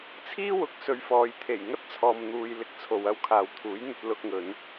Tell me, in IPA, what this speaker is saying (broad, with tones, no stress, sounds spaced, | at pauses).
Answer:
t͡sʰ iː˥ w ʊ˨˥ k̚ s ɵ˧ ɥ f ɔː˧ j t̪ʰ e˨˩ j ŋ ɐ˥ t̚ t͡sʰ ɔː˨ m n̪ uː˨ j l ɪ˧ k̚ t͡sʰ o˨ w ɐ˥ w kʰ aː˨ w t̪ʰ uː˨˥ j n̪ ɵ˧ t̚ l ʊ˧ k̚ ŋ ɵ˨˧ n